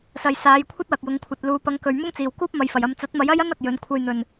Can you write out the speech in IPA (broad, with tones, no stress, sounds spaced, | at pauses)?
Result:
s ɐ˨ j s aː˨˧ j kʷʰ ɐ˥ t̚ w ɐ˨ k̚ j ʊ˨˧ ŋ kʷʰ ɐ˨ t̚ l uː˨ p ɐ˨˧ ŋ k ɵ˨ ɥ m ʊ˥ ŋ t͡s iː˨˩ w k uː˥ p̚ m ɐ˨˧ j f ɐ˨˩ j ɐ˧ m t͡s ɐ˨˥ t̚ m ɐ˨˥ j ɐ˥ j ɐ˥ n ɐ˨ k̚ j ɵ˨˧ n kʷʰ ɐ˧ j n̪ ɵ˨˩ n